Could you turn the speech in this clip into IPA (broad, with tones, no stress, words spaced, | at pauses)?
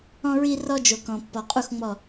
ɔ̃˦ɹi˦ rɔ˦d͡ʒo˨kɔ̃˨ pːɔ˨qʼu˦xŋ͡mɔ˦˨